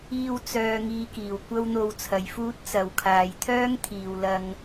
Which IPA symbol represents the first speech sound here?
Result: iː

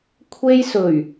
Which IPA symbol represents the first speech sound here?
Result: kʷʰ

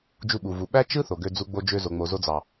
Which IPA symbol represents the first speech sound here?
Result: d͡ʒ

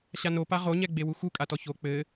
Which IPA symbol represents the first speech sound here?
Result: ɕ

